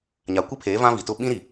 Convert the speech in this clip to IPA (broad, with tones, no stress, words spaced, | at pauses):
ɲa˨kʷi˦pʰeː˨˦ vã˦vi˨tʊ˦ ɓĩ˦ɾi˨